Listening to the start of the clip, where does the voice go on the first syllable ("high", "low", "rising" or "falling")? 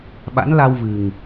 rising